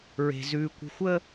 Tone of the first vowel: high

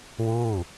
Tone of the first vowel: falling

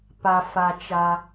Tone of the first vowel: low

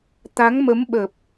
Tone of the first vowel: rising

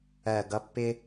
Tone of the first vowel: low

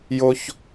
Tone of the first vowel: high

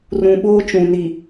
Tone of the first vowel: low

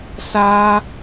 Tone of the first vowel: high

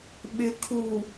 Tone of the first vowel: low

